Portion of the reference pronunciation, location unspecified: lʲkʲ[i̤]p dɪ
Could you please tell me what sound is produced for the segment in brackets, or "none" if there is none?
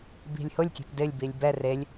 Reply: e̤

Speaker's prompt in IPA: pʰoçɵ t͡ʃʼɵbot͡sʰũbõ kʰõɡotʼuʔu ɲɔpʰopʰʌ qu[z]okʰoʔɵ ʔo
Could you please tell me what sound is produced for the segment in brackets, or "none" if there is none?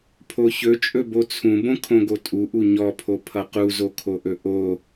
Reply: z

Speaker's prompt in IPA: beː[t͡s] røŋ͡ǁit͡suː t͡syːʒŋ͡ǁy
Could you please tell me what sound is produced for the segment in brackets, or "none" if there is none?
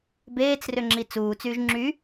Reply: t͡s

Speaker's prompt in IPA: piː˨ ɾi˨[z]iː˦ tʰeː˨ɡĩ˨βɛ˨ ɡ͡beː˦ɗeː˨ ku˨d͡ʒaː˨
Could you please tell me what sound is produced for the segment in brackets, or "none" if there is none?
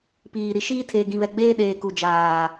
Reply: ʃ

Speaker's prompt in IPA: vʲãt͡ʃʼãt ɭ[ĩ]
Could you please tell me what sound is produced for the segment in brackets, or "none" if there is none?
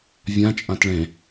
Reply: ẽ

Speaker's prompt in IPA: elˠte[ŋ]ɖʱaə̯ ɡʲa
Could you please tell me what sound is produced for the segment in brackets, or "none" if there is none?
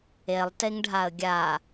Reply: ŋ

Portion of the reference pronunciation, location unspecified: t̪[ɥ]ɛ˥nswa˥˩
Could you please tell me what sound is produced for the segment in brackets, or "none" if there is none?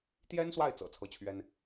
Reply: j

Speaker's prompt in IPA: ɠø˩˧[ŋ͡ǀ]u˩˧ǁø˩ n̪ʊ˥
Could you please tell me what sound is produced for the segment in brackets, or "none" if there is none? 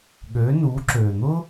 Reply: n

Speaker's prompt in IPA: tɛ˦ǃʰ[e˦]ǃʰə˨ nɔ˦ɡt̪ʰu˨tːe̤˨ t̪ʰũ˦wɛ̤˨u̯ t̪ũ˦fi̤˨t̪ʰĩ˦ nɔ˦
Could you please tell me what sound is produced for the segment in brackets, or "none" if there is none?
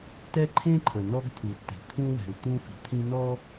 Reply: ẽ˦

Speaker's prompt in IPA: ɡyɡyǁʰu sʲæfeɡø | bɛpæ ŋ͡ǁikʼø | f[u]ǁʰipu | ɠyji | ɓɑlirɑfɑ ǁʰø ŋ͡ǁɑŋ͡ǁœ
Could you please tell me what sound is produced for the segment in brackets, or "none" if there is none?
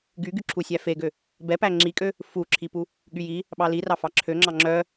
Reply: u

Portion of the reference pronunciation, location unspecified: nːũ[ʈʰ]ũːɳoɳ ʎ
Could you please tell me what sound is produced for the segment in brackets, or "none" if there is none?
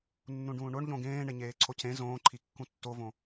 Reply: ɖ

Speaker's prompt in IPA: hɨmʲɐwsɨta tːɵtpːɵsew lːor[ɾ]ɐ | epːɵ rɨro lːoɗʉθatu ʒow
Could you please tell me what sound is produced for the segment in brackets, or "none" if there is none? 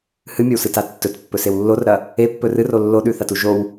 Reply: ɾ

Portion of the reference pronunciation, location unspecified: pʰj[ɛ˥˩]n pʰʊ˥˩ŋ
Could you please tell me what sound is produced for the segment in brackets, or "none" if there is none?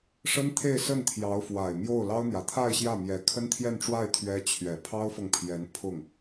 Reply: ɛ˧˥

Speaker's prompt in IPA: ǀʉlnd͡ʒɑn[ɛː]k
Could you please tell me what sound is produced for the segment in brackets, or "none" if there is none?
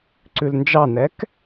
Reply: ɛ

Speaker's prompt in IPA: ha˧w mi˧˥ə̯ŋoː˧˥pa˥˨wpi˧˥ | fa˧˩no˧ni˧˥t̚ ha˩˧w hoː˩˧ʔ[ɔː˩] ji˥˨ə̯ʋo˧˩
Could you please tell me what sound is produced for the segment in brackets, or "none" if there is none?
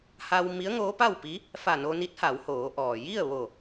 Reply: ɔː˩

